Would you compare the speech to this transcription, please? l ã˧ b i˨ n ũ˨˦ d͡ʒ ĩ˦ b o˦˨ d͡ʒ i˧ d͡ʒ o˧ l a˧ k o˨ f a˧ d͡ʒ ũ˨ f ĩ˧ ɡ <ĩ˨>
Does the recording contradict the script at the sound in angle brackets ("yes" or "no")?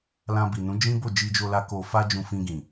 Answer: no